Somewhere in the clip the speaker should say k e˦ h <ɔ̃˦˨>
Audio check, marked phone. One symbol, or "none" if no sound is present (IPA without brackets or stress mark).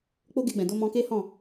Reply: ɔ̃˦˨